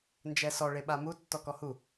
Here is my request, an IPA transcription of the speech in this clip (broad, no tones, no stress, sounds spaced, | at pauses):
n d͡ʒ ɛ s ɔ ɭ e ɓ a m u tː ɔ k ɔ h u